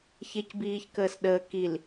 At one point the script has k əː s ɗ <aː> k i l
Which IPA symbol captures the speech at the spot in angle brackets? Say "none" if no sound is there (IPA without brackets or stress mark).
əː